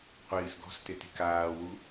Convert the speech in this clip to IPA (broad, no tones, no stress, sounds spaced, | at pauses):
qʷ iː s ɡ ɔ̤ s t ɪ t i̤ k aː w u